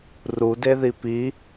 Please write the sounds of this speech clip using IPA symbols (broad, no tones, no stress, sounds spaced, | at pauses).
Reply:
r u d e ð i p i